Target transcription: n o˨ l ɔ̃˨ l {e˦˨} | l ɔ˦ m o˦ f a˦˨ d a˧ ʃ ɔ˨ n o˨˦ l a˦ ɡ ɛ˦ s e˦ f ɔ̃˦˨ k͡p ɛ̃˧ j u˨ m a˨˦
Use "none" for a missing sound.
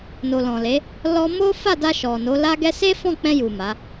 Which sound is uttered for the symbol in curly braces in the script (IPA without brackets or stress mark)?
e˨˦